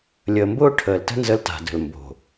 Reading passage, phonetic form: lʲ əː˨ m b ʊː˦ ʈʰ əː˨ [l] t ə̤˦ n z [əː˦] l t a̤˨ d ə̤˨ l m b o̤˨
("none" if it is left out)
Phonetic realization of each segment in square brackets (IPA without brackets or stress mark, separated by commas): l, ə˦